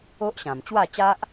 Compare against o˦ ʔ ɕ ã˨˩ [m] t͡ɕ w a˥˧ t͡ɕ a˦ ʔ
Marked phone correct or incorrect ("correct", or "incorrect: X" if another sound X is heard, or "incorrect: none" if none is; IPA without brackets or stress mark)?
correct